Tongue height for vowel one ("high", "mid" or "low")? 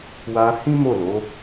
low